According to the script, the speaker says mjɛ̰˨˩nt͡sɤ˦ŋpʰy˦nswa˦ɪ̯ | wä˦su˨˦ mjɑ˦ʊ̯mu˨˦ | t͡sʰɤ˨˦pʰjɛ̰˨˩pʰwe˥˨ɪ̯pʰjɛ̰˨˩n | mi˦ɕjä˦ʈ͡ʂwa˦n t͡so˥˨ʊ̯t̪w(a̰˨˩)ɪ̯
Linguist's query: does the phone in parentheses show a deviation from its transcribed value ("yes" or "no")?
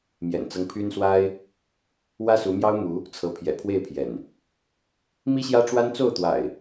no